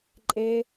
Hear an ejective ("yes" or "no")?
yes